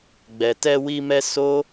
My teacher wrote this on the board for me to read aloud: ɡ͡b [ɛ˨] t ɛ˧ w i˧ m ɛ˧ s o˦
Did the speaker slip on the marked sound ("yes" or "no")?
no